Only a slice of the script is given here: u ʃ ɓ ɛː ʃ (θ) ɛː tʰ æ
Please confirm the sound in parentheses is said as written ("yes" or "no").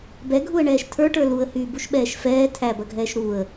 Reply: no